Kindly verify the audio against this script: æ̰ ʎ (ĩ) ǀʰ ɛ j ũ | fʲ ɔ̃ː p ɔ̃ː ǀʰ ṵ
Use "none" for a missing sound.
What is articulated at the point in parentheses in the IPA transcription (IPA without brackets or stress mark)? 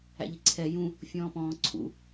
i